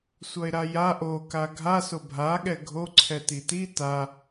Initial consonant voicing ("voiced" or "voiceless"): voiceless